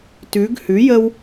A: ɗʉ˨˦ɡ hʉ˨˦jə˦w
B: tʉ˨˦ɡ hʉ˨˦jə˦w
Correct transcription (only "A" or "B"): B